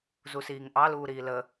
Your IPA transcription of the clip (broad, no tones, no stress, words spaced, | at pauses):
zusiːŋʔɑ luːɾiːlə